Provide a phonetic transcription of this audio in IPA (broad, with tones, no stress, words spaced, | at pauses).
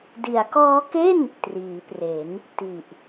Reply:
di˩˦a̯kɔː˦˥ke˥˩n | triː˩˦pre˩˦n | ti˨˩ʔ